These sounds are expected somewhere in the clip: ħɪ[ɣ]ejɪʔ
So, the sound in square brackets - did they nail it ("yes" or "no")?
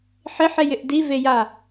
no